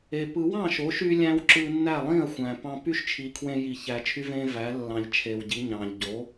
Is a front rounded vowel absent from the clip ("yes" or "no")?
no